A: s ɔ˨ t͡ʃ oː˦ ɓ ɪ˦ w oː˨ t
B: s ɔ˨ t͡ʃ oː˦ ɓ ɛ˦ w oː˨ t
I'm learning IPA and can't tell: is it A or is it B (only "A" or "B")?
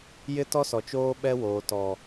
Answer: B